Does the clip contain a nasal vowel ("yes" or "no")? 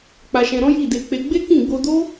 yes